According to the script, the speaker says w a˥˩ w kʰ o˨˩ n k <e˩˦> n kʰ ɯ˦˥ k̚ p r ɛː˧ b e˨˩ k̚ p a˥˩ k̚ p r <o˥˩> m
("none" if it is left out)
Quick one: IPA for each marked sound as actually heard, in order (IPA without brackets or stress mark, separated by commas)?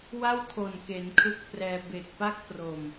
e˩˦, o˨˩